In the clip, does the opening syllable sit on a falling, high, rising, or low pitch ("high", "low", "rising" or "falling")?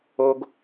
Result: high